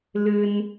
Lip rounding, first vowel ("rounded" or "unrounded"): unrounded